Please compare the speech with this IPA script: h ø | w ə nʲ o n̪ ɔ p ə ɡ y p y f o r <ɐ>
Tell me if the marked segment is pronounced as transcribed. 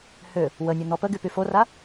no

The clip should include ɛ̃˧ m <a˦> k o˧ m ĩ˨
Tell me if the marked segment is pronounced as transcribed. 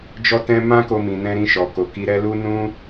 no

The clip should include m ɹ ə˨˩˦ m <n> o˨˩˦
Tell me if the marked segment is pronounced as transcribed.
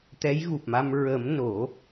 yes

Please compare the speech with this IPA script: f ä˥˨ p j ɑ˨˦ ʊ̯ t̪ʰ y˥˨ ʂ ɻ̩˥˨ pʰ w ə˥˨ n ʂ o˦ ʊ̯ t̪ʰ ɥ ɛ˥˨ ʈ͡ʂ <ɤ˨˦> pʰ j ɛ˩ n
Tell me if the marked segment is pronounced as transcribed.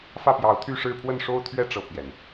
no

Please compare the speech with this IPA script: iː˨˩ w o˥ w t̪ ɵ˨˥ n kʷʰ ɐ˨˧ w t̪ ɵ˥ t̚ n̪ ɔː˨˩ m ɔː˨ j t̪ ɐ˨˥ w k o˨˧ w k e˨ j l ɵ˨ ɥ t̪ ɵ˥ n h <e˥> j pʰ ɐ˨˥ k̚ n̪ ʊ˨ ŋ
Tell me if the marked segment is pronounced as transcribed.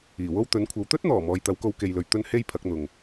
yes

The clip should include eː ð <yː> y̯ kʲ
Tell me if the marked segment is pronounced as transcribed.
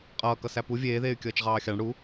no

